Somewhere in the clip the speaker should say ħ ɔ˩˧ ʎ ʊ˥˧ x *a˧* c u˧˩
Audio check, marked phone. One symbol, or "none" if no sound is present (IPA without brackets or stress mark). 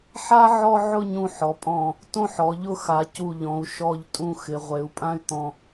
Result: a˩˧